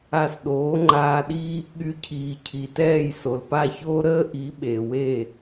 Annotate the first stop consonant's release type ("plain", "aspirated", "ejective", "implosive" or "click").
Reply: implosive